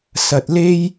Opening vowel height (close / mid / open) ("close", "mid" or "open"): open